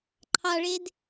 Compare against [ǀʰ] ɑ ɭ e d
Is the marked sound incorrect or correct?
incorrect: ǃʰ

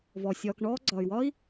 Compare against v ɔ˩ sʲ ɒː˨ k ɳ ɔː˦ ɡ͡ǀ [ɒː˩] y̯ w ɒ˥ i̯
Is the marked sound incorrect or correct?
correct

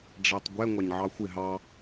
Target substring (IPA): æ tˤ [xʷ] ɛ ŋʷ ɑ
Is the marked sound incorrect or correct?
incorrect: ɡʷ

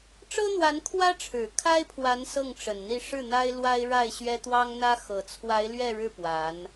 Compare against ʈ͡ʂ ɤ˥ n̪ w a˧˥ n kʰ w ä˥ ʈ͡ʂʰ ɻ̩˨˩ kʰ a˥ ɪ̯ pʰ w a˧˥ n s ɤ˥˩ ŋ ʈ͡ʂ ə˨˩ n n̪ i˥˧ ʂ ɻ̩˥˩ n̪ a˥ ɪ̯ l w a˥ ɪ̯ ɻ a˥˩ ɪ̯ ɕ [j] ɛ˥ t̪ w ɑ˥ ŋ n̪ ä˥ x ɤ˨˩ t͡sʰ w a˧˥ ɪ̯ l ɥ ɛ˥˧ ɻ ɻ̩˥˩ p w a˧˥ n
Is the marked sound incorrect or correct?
incorrect: ɥ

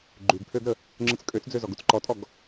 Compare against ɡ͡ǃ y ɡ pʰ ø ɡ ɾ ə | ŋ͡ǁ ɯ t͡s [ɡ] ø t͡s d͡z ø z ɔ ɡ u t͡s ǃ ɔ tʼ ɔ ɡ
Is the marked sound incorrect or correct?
incorrect: kʼ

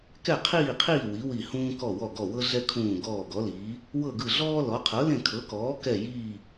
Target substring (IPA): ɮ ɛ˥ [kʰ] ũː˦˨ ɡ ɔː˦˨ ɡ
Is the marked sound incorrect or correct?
correct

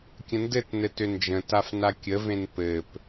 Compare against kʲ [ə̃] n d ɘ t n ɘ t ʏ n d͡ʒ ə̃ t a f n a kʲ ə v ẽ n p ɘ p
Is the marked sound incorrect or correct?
correct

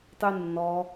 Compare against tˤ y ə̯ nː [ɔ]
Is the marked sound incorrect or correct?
correct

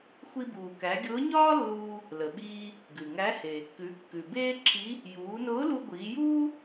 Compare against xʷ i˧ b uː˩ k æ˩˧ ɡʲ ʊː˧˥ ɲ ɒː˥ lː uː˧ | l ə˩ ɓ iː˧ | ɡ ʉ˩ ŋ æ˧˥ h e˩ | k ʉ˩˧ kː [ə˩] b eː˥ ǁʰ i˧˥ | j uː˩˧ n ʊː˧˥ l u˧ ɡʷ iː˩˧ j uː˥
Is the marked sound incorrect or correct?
incorrect: ʉ˩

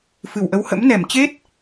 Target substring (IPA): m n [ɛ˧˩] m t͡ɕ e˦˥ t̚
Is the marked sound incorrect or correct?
correct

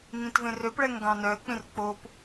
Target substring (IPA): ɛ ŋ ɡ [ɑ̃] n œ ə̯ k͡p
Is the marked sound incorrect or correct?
correct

